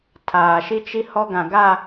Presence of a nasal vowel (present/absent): present